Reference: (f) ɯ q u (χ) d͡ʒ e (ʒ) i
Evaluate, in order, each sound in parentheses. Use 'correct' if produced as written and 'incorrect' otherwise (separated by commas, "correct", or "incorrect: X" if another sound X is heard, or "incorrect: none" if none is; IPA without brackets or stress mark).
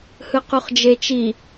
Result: incorrect: h, correct, incorrect: t͡ʃ